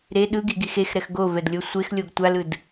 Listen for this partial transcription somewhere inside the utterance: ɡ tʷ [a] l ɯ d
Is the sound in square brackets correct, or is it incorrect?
correct